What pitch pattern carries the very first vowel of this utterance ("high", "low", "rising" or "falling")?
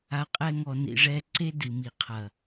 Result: low